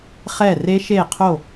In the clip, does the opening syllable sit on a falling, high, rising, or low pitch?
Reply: falling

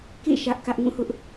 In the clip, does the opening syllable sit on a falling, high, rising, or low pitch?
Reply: falling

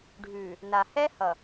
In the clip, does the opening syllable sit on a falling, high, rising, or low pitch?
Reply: low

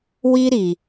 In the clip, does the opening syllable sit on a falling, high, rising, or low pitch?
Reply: high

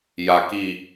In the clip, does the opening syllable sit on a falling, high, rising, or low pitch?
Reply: low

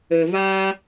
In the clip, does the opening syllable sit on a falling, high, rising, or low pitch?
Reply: low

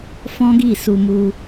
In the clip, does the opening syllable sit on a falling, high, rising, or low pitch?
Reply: high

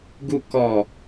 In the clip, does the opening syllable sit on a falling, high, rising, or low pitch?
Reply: low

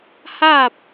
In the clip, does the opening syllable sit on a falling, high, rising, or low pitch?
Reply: falling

